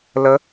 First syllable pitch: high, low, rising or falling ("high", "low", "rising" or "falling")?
rising